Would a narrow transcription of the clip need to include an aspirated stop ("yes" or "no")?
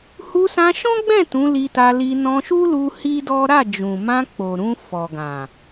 no